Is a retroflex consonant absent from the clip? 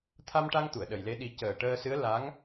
no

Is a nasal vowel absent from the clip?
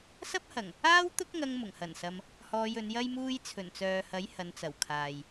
yes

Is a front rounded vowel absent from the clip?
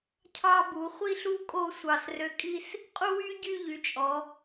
no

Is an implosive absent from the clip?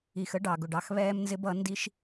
yes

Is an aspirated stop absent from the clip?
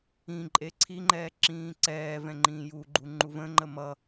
no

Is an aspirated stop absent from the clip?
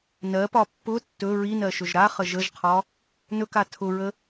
no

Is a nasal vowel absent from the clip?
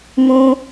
no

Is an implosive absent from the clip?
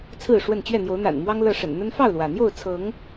yes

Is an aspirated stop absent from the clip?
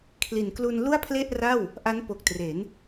no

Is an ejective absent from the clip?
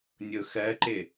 yes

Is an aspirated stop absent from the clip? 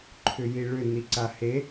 no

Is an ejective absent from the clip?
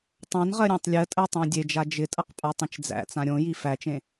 no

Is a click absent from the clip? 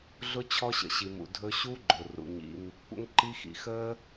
no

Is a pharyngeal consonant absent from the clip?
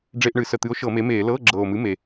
yes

